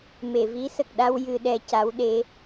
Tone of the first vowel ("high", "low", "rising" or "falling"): low